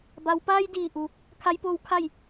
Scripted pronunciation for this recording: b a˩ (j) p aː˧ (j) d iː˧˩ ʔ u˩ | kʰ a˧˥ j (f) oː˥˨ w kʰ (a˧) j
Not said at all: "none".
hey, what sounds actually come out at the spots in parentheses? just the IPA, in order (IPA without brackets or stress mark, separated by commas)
w, j, p, a˥˨